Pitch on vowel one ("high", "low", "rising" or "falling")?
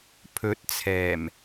rising